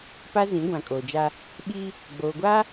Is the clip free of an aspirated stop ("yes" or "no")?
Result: yes